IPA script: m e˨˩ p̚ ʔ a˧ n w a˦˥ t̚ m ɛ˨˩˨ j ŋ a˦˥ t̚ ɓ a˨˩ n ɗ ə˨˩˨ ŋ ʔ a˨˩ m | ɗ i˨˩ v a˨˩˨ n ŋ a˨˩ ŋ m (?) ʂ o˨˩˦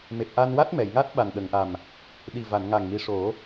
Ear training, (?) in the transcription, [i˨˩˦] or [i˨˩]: i˨˩˦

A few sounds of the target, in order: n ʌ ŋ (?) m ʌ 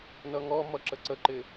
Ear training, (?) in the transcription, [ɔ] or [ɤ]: ɔ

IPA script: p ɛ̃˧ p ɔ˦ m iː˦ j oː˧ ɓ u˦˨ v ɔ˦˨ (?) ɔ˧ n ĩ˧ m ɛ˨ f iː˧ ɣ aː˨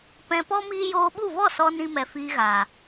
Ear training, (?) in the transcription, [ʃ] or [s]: s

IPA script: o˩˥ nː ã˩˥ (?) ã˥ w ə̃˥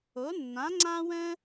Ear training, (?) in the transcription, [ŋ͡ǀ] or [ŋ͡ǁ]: ŋ͡ǀ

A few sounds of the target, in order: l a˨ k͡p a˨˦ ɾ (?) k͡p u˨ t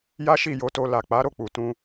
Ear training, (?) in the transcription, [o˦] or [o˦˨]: o˦˨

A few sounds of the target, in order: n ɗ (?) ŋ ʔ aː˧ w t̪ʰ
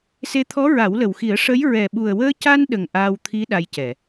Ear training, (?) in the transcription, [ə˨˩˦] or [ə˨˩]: ə˨˩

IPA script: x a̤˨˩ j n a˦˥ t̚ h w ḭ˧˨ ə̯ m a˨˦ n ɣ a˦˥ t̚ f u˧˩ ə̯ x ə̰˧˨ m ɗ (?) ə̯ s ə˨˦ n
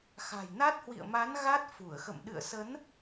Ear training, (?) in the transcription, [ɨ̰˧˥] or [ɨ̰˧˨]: ɨ̰˧˨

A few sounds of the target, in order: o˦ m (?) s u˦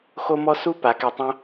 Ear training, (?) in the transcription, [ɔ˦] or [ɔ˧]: ɔ˦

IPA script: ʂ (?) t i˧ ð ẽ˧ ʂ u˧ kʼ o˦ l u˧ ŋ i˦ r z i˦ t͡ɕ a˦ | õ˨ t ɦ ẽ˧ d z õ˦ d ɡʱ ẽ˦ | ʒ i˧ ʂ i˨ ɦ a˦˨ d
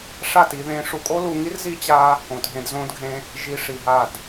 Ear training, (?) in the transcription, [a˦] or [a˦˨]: a˦˨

